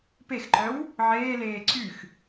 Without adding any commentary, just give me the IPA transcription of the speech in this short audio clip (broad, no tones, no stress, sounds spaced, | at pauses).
p e x ǃ œ w | ʕ eː l eː ǀ y x